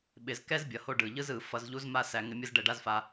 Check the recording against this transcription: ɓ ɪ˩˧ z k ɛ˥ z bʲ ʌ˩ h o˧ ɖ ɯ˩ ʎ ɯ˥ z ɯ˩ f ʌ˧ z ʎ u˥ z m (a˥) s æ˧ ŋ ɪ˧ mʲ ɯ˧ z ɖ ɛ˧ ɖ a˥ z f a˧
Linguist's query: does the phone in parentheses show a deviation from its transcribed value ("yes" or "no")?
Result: no